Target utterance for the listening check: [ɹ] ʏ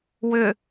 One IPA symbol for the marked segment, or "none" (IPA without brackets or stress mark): w